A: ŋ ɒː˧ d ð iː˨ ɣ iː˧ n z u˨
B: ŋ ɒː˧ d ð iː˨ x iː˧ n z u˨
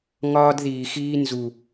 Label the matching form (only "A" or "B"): B